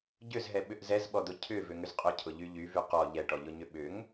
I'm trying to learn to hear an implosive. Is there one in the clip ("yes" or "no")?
yes